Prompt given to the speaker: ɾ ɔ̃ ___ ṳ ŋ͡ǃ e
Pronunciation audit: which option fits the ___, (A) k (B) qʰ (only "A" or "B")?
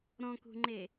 A